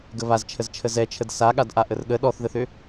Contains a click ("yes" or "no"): no